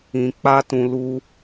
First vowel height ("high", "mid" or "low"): high